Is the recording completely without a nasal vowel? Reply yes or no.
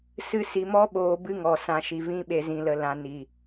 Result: no